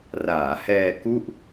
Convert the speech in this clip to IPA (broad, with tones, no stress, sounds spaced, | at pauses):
r aː˩˦ h ɛː˧ k u˥˩ ʔ